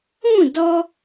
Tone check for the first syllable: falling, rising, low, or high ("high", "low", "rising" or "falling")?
falling